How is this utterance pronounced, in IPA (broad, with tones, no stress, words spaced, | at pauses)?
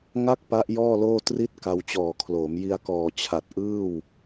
ŋa˥˩k̚pa˦˥ʔ jɔː˥˩loː˥˩ tri˥˩t̚ ka˧wt͡ɕɔː˨˩kʰloː˩˦m ji˧a̯kɔː˨˩t͡ɕʰa˨˩t̚ ʔɯː˥˩w